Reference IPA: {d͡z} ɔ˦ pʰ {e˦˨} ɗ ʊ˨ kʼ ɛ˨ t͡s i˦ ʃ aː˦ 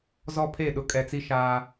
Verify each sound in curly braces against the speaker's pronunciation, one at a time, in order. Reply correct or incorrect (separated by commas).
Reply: incorrect, correct